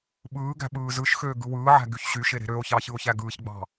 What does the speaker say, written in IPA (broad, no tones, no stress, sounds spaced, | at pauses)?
ɓ ɯː ɡ æ̤ ɓ ɯː z ɯ ʃ x øː ɡ ɯ w ɯː ʕ æ̤ ɡ y ç ɕ y ʃ e ɾ e̤ ɾ ø o̯ ç ɑ ç ɯ o̯ ç æ ɡ ɯː ç ɡ͡b ɑ̤